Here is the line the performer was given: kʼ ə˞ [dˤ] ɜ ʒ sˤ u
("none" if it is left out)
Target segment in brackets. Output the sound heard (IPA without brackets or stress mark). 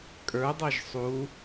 dˤ